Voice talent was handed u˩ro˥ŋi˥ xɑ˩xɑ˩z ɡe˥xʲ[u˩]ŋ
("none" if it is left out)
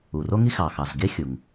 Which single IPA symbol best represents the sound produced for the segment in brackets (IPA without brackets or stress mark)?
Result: u˩